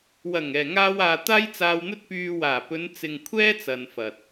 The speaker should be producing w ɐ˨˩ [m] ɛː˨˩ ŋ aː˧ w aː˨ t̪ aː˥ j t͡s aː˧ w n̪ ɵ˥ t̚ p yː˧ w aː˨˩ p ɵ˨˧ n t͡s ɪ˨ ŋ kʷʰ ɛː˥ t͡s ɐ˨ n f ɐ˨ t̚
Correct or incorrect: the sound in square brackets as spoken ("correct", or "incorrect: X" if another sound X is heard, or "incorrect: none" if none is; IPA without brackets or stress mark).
incorrect: ŋ